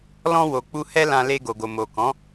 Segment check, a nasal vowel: present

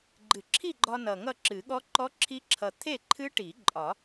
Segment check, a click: present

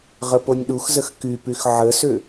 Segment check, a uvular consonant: present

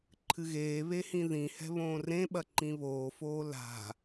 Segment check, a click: present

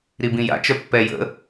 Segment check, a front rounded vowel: present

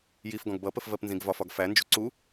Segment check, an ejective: absent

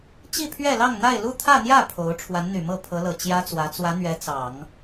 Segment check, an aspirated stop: present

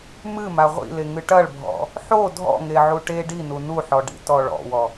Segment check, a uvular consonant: present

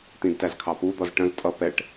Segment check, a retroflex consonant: present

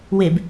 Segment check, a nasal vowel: absent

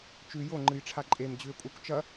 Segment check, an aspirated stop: present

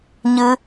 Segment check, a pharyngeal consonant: absent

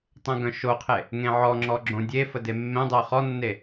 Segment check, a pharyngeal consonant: present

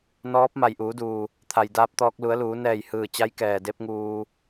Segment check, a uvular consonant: absent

